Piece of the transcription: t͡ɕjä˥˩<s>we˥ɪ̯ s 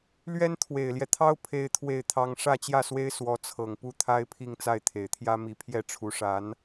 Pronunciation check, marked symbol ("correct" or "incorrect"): correct